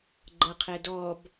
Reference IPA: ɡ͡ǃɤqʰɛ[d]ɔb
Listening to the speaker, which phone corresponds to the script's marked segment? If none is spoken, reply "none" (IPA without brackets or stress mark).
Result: d